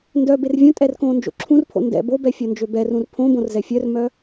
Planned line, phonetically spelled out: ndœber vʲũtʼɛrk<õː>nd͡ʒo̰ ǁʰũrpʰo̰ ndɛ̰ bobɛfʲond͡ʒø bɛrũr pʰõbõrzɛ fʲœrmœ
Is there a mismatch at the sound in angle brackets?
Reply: no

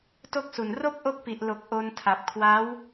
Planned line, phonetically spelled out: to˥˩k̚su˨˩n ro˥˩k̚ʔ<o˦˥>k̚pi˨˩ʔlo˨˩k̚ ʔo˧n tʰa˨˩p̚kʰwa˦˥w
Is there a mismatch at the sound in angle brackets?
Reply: no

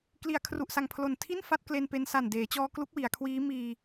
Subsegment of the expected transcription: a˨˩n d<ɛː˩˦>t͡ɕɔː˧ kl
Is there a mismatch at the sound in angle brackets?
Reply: yes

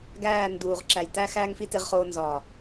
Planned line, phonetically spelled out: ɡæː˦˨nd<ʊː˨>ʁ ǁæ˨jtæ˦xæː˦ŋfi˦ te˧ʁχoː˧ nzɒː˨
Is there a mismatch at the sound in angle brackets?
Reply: yes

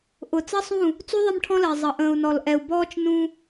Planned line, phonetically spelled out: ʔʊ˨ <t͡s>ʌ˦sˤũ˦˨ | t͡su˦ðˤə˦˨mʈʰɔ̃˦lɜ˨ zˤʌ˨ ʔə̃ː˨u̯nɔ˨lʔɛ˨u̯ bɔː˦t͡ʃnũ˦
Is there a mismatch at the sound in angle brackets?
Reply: no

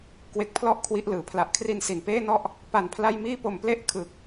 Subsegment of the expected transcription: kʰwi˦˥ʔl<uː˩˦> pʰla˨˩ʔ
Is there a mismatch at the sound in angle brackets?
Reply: yes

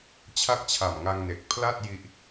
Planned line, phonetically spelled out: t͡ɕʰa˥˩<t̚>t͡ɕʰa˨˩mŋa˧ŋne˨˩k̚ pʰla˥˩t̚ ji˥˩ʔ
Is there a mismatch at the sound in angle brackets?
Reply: yes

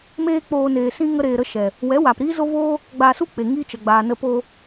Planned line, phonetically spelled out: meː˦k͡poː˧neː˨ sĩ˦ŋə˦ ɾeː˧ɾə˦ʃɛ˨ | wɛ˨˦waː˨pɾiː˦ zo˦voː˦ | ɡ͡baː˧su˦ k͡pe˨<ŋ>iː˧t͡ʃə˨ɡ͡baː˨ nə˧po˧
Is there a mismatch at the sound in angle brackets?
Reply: no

